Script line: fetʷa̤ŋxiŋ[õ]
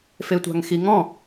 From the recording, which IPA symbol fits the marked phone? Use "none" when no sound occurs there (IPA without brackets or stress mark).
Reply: ɔ̃